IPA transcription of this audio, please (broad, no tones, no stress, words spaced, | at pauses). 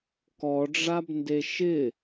kɔɖ͡ʐabnde ʃɪ